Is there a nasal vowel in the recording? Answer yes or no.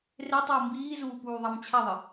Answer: no